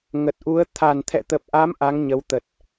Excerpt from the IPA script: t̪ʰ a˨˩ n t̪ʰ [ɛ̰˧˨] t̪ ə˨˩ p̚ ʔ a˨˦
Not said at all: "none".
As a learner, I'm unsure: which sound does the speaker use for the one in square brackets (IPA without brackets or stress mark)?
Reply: ɛ̰˧˨